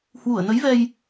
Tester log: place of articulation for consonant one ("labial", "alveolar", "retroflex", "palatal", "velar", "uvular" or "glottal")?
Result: glottal